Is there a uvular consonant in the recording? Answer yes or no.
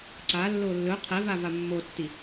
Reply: yes